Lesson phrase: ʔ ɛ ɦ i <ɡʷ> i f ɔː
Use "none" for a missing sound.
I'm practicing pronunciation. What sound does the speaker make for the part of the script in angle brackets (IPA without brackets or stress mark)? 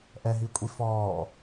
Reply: kʷʼ